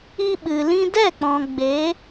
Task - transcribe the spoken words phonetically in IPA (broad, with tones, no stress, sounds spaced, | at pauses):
i˧ ɓ ɨ˨ l ĩ˧ d ɛ˦˨ k͡p ɔ̃˨ ɡ͡b e˨˦